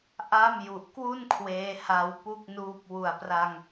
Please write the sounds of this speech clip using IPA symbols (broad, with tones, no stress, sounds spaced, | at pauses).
ʔ a˥˩ m j u˨˩ ʔ k w u˥˩ n kʰ w eː˦˥ h a˧ w p u˥˩ k̚ n uː˦˥ p̚ w u˨˩ a̯ p r a˧ ŋ